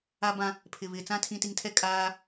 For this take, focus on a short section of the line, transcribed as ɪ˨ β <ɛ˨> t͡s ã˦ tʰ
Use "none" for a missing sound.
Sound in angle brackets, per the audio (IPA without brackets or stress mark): ɪ˨